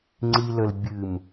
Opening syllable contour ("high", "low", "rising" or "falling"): low